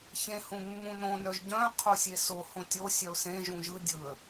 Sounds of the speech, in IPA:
ç ẽ h ũ mː ũ n õ n œ ʒ ɟ œ̃ qʰ o sʲ e s o h õ tʲ o sʲ œ ʊ̯ s ẽ ʒ ũ ʒ ɯ dʲ ɯ ə̯

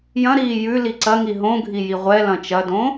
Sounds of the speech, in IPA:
j ɐ̃ ɾ iː j ʉ l i ǀ ɐ ŋ i ɦ õ ɡʱ i j i ʁʷ ɛ l ɐ̃ t͡ʃ ɐ d õ

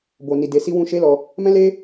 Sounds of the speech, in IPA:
b o˨ n i˨ d e˨ s i˧ w ũ˧ ʃ e˦ l ɔ˧ | m ɛ̃˦ l e˦

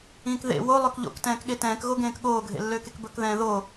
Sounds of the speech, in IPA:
ĩː k ð ḛ w o lˠ ø k ʎ o̰ k t ɛ̃ː k ɠ e t ɛ̃ː k ɣ o ɡ ẽː k ɠ oː ɡʱ ḛ lː øː k e k b ɵ k ð ɛ̃ː ð o

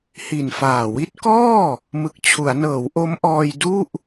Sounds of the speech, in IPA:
h i˨˩ n f aː˨˩ w i˦˥ t̚ k ɔː˥˩ | m ɯ˨˩ k̚ t͡ɕʰ u˩˦ a̯ n ɤː˩˦ w ʔ o˦˥ m ʔ ɔː˧ j d u˥˩ ʔ

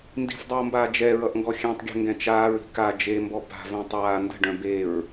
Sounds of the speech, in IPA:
n d i̤ f dˤ ʌː m b aː d͡ʒ ɛ ɹ ʌ ʔ ŋ ɡ ɔ xʲ ɛ̃ tˤ ɡʲ ɛ̤ ŋ ɡ ɛ̃ t͡ʃ aː ɹ i̤ k a d͡ʒ e m b ɔ b a̤ v œ̃ tˤ aː n d ə̤ ɖ œ̃ b e ɹ

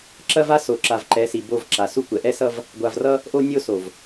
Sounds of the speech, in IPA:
ǁ ɐ˦ v a˦ s o˨ ǁ a˨ v ǃ ɛ˨˦ s i˨ b o˦˨ v ǁ a˨ s u˦ kʷ ɛ˨ ʔ ɛ˦ s ʌ˦ v | ɡʷ a˨ v r ʌ˦ | ʔ o˦ nʲ o˦ s o˨ v

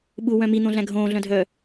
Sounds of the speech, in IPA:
ɓ u w œ̃ m i n̪ õ ɮ æ̃ ɡʱ õː ɮ œ̃ dʱ œː

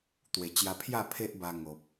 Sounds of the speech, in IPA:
t̪ w e˨˩ t͡ɕ j a˧ pʰ j a˥˧ pʰ e˦ ʔ b a˧ ŋ o˨ p̚

